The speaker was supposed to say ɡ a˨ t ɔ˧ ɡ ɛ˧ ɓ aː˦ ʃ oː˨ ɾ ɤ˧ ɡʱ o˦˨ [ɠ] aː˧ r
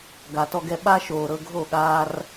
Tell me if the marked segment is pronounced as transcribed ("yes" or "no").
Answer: yes